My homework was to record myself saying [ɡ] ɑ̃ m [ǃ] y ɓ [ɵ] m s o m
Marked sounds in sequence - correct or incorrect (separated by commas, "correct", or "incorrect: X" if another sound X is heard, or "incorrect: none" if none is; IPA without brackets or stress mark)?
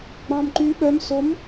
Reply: incorrect: ɡ͡b, correct, incorrect: œ